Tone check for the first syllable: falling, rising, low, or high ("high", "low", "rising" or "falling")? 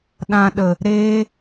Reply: low